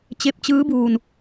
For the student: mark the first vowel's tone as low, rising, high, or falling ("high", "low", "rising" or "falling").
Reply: rising